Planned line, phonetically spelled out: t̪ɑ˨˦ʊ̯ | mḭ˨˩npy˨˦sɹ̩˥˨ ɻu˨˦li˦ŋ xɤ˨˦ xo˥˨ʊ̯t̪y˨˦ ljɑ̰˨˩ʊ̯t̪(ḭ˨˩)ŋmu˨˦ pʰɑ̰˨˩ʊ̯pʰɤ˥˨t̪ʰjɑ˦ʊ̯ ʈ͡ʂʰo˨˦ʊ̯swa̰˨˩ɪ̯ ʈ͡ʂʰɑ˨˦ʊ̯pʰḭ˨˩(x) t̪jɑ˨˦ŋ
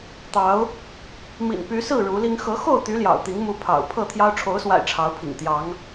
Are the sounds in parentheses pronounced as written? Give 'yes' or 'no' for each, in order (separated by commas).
no, no